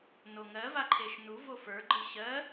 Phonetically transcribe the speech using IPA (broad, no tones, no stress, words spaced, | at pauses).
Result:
noŋɜ vaǃʰeʃnu vofə˞ ɡ͡ǃɯɕɜ